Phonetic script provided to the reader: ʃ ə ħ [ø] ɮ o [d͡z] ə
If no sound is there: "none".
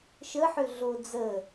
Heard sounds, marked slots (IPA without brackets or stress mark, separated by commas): ø, d͡z